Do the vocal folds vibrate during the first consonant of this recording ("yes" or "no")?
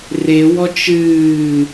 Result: yes